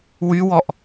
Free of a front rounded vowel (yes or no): no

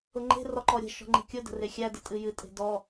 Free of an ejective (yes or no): no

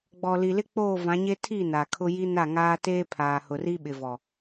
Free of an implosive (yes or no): no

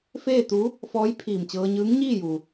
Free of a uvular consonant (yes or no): yes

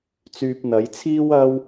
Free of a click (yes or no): yes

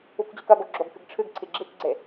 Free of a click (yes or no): no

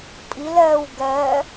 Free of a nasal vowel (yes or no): yes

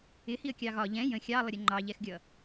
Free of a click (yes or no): no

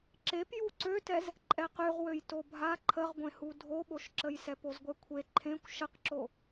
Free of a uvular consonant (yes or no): no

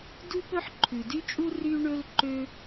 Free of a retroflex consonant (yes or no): no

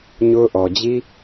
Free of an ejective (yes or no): yes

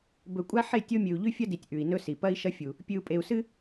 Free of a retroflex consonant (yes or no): yes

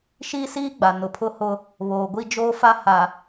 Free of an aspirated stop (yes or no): no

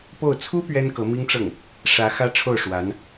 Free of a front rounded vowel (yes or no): yes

